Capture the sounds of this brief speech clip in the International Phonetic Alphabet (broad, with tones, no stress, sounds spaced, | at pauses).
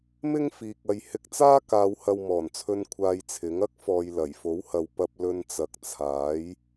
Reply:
m ɪ˥ ŋ f iː˨ k̚ ɐ˨˧ j h ɪ˧ k̚ t͡s aː˥ k aː˨˧ w h ɐ˧ w m ɔː˨˩ n t͡sʰ ɵ˧ n kʷʰ aː˧ j t͡sʰ ɪ˨˥ ŋ ɐ˥ k̚ f ɔː˨ j l ɐ˨˩ j f o˨˥ w h ɐ˨ w p ɐ˧ p̚ l ɵ˧ n t͡s ɐ˨ k̚ t͡sʰ aː˨˥ j